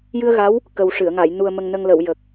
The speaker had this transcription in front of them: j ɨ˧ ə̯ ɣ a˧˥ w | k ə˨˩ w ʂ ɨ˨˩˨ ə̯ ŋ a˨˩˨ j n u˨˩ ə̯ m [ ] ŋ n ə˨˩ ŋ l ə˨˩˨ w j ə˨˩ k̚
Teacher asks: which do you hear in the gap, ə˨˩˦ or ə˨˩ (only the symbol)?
ə˨˩